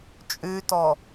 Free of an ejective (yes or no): no